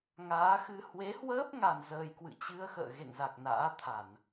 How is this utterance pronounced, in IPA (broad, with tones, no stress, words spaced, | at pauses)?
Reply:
ŋaː˨˦xɨ˧ hwe˨˦hwəː˦˥p̚ŋa˨˩nzəː˨˩j kwɨ̰˧˨t͡ɕɨ˧ə̯ xə̰ː˧˨ɣḛ˧˨ŋza˨˩k̚ na̰ː˧˥t̪ʰa˧˩˨n